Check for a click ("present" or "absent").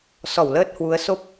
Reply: absent